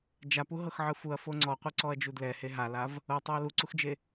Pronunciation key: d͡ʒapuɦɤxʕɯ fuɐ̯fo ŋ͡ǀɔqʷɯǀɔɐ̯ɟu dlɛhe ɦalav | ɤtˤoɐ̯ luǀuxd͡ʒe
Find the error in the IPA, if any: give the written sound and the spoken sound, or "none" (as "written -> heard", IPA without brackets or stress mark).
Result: ɟ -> d͡ʒ